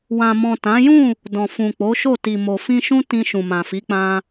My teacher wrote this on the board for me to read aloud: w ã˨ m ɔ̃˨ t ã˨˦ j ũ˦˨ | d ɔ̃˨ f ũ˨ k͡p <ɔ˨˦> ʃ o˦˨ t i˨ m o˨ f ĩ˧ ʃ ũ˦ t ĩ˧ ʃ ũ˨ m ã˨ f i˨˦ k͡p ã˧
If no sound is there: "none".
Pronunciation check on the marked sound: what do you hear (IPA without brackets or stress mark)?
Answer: o˨˦